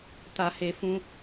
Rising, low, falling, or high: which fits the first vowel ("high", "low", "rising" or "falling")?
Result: low